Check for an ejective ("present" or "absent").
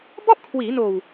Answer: absent